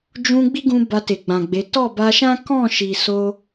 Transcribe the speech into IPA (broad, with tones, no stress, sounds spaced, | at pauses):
d͡ʒ ũ˧ ɡ͡b i˦ ɡ ũ˧ b a˧ t e˨ ɡ͡b ã˨ ɡ͡b e˨˦ t ɔ˦˨ b a˧ ʃ ã˦ k ɔ̃˦˨ ʃ i˨ s o˧